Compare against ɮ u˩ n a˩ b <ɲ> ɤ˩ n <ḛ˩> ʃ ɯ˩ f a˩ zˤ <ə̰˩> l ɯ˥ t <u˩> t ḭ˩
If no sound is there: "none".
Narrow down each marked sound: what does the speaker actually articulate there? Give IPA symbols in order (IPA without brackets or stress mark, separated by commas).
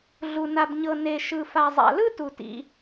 ɲ, e˩, a̰˩, u˩